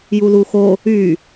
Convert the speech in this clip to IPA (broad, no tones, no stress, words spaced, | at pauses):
juluxo | y